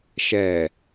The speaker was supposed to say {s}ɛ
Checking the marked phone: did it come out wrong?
yes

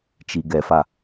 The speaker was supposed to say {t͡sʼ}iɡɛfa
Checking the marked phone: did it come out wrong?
yes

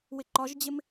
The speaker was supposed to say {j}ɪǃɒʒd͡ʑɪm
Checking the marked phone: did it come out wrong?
yes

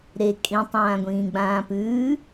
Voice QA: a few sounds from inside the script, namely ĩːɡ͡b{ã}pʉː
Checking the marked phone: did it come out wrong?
yes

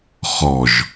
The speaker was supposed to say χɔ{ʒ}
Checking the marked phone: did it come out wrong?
no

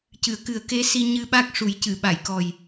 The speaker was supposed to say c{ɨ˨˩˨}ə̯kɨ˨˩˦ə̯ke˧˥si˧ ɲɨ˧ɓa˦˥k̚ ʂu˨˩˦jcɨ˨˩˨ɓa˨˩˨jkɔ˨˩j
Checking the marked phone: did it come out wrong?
no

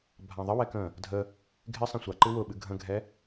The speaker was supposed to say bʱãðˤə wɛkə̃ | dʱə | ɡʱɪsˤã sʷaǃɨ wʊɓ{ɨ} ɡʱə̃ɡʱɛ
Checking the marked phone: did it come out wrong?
no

